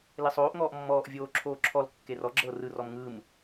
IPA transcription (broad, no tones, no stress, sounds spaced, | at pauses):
l e sˤ oː ʔ ŋ ɔː ʔ mː ɔː ʔ vʲ oː ǁʰ oː ǁʰ ɔ l kː e r ɔ ɡ͡ǁ ɤː r ɯ r ɔ m ŋ ɯː m